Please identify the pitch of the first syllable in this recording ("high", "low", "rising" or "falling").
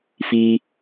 high